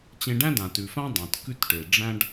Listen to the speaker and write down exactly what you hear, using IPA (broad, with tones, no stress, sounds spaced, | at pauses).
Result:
t͡ɕ ẽ˧ ɖ æ̃˥ d ã˩ t ʉ˩ f ã˥ dˤ ã˩ t k ʉ˧ t ʈ e˩ ɖ͡ʐ æ̃˧ ɖ